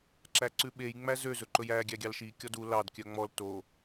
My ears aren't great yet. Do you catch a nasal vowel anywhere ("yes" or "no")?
no